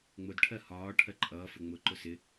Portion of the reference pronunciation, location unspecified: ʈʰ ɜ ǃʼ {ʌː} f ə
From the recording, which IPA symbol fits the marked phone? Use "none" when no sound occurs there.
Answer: ʌː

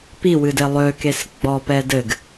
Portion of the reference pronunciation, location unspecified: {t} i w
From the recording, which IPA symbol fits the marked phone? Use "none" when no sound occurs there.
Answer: p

